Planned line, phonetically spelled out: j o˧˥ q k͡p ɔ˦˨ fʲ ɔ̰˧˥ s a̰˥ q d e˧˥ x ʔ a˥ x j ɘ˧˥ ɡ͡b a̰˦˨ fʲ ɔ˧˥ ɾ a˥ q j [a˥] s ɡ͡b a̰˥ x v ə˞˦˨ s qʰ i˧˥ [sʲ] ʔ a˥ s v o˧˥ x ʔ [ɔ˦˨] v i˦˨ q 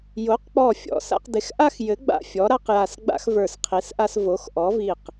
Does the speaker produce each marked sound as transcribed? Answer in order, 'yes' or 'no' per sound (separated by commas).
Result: no, no, no